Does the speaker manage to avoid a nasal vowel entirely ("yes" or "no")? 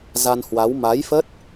yes